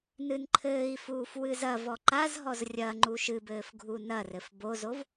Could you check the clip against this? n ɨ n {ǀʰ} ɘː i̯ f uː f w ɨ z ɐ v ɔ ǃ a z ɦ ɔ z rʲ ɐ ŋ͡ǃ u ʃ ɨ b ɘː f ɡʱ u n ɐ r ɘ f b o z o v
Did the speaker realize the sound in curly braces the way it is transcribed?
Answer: no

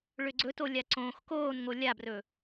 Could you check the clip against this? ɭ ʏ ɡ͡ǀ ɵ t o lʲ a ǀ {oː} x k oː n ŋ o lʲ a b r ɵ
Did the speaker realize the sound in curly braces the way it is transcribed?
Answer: no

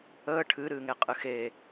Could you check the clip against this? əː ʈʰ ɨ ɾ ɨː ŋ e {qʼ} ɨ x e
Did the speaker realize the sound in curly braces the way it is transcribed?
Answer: yes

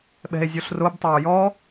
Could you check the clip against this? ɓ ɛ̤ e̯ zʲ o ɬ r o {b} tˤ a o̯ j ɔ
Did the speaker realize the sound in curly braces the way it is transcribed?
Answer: yes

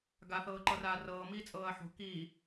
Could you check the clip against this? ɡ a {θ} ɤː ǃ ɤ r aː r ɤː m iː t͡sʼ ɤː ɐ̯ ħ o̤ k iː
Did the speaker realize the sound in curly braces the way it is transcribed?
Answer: yes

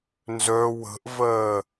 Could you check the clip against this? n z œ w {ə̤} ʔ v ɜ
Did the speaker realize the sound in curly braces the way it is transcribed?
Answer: yes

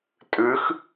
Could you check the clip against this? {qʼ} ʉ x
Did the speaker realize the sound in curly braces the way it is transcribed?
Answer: no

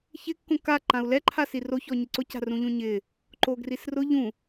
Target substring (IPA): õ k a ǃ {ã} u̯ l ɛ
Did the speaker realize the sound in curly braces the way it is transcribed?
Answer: yes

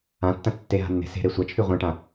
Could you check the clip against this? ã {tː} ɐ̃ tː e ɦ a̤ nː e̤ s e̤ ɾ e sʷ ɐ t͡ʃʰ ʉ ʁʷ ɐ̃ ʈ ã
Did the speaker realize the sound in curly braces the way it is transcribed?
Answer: yes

